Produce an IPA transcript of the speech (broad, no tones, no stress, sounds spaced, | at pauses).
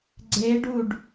ɡ͡ǀ e ɖ u ɖ